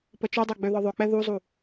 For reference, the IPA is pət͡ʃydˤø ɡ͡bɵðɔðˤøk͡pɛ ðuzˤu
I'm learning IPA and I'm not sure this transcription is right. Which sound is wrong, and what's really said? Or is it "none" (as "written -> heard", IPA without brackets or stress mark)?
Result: ɵ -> ø